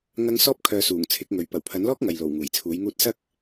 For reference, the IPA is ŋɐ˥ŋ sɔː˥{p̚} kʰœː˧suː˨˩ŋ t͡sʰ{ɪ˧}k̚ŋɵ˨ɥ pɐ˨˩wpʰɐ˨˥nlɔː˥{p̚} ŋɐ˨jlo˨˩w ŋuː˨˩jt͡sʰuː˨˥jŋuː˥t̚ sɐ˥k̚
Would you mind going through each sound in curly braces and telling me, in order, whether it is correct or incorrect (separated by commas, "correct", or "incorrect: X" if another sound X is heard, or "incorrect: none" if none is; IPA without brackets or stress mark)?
correct, incorrect: ɪ˨˥, incorrect: k̚